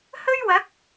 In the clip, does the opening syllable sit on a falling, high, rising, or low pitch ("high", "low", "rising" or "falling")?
high